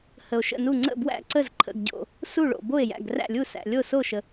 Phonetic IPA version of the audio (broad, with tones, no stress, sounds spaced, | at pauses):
h ə˩ o̯ ʃ ə̰˥˩ n u˥˩ ŋ͡ǀ ə̰˥˩ b w æ̰˥˩ ǀ ə˥˩ z ǃʰ ə̰˥˩ ɡ ɟ o̰˥˩ | s u˥˩ ɭ o̰˩ b o˥˩ e̯ j æ̰˥˩ ɡ r æ̰˥˩ lʲ u˥˩ s æ̰˩ lʲ o˥˩ s o˥˩ ʃ ə˩